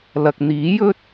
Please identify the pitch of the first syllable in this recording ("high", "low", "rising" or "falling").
low